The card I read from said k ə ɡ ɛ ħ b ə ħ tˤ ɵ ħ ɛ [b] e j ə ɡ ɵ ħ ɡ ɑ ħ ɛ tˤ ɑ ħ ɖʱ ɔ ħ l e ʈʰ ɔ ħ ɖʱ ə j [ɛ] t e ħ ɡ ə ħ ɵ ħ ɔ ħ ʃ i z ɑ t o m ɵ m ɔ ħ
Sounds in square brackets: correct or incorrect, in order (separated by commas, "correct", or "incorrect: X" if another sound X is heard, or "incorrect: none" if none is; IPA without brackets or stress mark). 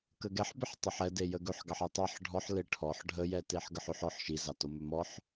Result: incorrect: d, correct